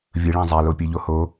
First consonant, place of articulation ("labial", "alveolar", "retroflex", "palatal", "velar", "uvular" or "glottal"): labial